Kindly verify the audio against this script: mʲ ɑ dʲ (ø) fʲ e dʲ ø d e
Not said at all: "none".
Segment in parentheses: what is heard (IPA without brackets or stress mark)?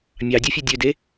u